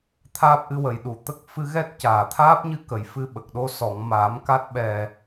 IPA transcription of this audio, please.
t̪ʰ aː˦˥ p̚ ʔ ɨ˧ w ə˨˩ j ɗ u˨˩˨ t̪ ə˦˥ k̚ f ɨ˧ ɣ ɛ˦˥ t̚ c aː˨˩˨ t̪ʰ aː˦˥ p̚ ɲ ɨ˧ k ə˨˩˨ j f ɨ˧ ɓ ə˨˩ k̚ ɗ o˧ s ɔ˨˩˨ ŋ m aː˨˩˦ m k a˦˥ t̚ ɓ ɛ˨˩

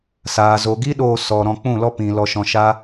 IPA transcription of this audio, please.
s aː˨ z o˨ ɡ i˦ ɗ oː˧ s ɔ˨ ɾ ɔ̃˧ k͡p ũ˦˨ l ɔ˦ p ĩ˨ l ɔ˧ ʃ ɔ̃˧ ʃ a˦

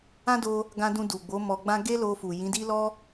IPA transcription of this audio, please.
ã˦ d o˧ | ɡ ã˧ d ũ˧ d u˨ ɡ͡b o˨˦ m ɔ˧ ɡ͡b ã˦ ɡ e˦ l o˧ f u˨ j ĩ˨˦ d i˦ l ɔ˦

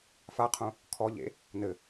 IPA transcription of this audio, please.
f a qʰ ũ | kʰ ɔ ʎ ḛ | n ɘ

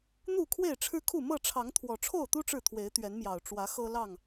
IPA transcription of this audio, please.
n̪ u˥˨ kʰ w e˥˨ ɪ̯ ʈ͡ʂʰ ɻ̩˦ kʰ u˥˨ m ɤ˥˨ ʈ͡ʂʰ ɑ˨˦ ŋ t̪ʰ w ɔ˨˩ ʈ͡ʂʰ o˥˨ ʊ̯ t̪ u˦ ʈ͡ʂ ɻ̩˥˨ t̪ʰ w e˨˦ ɪ̯ t̪ ɥ ɛ˨˦ n m j ɑ˨˩ ʊ̯ ʈ͡ʂ w ä˨˦ x ɤ˦ l ɑ˥˨ ŋ

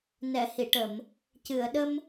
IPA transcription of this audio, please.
n ɛ˨˩˨ h i˨˩˨ ʈ ə˨˩˨ m | c ɨ˨˩˨ ə̯ ɗ ə˧ m

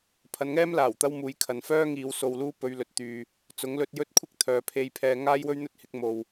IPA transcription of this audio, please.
pʰ ɐ˨˧ n ŋ ɛː˥ m l aː˨˩ w t̪ ɐ˥ w m uː˨˧ j kʰ ɐ˨ n f œː˥ ŋ iː˨˧ w s o˧ w l uː˥ p ɵ˨˧ ɥ l ɵ˨ t̚ t̪ yː˨ | t͡s ʊ˨˥ ŋ l ɵ˧ t̚ j ɵ˥ t̚ kʷʰ ɪ˥ k̚ t̪ʰ œː˨ pʰ e˧ j pʰ ɛː˧ ŋ aː˥ j w ɵ˥ ɥ n̪ ɵ˥ t̚ h ɪ˨˥ k̚ m o˨ w

